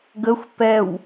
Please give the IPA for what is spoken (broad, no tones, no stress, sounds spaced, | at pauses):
ɡ ə xʷ p ɛ w